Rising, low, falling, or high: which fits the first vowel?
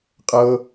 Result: high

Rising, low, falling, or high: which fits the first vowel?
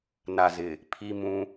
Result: low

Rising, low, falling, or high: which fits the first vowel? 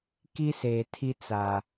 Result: high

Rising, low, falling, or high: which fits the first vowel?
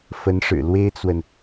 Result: rising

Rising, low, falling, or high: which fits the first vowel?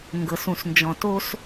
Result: low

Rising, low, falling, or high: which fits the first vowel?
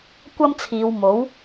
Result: high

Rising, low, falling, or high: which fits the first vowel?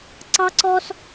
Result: high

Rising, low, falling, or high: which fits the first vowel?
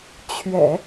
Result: low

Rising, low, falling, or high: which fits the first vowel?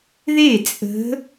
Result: falling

